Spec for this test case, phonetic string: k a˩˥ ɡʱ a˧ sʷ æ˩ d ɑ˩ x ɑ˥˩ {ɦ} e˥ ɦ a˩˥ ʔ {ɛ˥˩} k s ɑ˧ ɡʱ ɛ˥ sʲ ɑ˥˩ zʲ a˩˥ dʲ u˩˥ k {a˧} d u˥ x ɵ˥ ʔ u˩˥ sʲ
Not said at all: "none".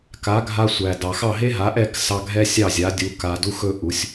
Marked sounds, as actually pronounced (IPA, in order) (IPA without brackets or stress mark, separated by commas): ɦ, ɛ˥˩, a˧